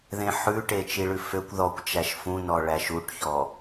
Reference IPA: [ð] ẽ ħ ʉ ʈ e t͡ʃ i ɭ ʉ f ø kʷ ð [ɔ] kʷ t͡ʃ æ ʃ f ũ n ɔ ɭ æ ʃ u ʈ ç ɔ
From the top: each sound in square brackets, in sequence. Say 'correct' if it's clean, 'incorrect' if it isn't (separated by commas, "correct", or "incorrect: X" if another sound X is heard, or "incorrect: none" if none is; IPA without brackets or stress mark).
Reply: correct, correct